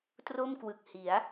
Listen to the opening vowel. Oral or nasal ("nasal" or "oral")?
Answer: oral